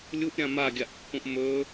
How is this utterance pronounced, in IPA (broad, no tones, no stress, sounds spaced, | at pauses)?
lʲ u ʔ ɾʲ ã m a ɡʲ a ʔ pː ũ ʔ m ɵ